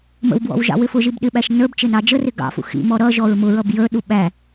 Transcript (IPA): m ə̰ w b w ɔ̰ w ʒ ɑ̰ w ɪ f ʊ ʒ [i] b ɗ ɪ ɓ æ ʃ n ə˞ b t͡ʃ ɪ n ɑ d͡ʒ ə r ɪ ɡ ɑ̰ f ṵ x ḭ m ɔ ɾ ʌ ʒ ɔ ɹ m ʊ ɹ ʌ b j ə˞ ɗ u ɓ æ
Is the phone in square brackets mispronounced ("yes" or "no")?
no